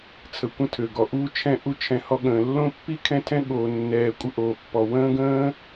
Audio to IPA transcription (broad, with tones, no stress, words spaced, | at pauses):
t͡sʰə˨kʷə̃˦tʰø˩ɡɔ˩ ʔu˦ t͡ʃʰɛ̃˦ ʔu˥t͡ʃʰɛ̃˨hɔ˦ɠə̃ː˩ lːõ˥pːi˥ kʰɛ̃˥tʰɛ̃˥ ɠoː˨ nːɛː˨ kʷʼə˦ʔoː˩pːɔ˩ wə̃ː˥ɡə̃ː˥